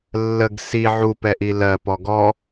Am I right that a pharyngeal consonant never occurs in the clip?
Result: no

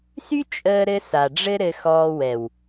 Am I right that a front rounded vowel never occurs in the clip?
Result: no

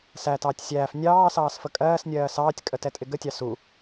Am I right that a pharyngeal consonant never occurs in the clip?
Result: yes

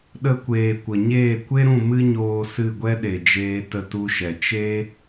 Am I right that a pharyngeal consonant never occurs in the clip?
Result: yes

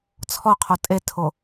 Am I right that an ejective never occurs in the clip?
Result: no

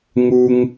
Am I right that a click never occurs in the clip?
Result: yes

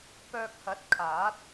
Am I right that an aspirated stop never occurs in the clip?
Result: no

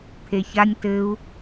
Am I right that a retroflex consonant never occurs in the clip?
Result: yes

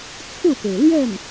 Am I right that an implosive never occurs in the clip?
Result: yes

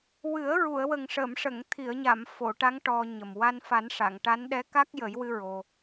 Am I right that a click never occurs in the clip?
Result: yes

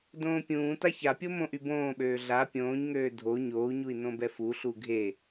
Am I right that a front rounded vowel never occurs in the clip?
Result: no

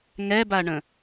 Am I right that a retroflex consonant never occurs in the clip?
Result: no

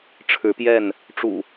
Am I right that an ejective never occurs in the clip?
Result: yes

